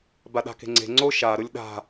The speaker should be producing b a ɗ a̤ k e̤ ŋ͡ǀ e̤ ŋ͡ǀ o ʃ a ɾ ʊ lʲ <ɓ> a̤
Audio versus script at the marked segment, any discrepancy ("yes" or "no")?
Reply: yes